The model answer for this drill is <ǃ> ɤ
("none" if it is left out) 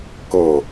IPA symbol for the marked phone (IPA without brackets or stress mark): k